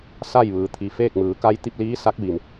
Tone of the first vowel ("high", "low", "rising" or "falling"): falling